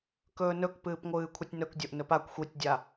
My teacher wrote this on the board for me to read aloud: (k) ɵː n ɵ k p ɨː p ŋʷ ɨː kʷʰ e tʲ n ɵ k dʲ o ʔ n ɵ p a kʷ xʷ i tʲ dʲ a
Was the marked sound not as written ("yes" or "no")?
no